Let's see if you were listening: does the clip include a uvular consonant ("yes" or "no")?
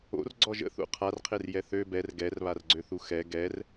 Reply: yes